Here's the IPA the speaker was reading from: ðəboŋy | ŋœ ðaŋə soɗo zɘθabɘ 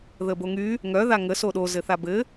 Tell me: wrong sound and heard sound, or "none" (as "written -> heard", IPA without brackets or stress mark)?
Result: none